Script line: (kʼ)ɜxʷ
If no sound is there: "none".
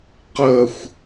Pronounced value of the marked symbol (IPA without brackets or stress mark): q